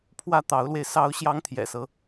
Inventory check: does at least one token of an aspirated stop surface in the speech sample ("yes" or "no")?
yes